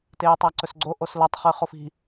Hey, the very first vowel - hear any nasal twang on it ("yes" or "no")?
no